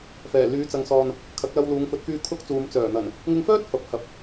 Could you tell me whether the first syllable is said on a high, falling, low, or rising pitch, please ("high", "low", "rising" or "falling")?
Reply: low